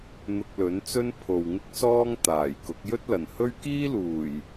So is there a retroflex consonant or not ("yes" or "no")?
no